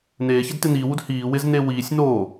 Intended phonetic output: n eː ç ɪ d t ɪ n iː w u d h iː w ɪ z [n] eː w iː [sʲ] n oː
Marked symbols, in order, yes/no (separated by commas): yes, yes